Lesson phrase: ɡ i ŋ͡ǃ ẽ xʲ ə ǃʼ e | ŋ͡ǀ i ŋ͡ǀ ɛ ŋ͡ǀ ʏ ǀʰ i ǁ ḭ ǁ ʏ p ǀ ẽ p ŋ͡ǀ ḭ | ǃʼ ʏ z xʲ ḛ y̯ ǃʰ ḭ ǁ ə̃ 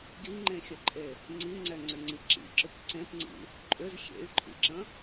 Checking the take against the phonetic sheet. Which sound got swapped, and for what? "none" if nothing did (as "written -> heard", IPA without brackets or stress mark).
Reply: ǀʰ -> ŋ͡ǀ